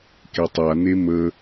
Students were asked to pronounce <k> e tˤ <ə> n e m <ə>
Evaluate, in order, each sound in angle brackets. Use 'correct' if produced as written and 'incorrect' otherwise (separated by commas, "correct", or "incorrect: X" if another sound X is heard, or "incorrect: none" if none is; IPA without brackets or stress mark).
correct, incorrect: a, correct